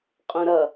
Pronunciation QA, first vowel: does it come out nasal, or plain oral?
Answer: nasal